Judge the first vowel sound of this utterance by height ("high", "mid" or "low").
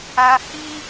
low